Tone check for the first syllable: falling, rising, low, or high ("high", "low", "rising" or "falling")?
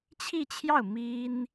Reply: falling